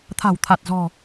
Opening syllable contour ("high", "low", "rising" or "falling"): low